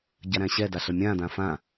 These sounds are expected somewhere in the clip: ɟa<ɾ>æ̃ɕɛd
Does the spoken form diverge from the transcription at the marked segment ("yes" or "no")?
no